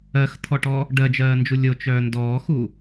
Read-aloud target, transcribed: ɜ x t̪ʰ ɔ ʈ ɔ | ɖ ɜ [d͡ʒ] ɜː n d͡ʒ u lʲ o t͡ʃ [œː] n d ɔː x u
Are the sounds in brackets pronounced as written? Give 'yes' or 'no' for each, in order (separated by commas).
yes, yes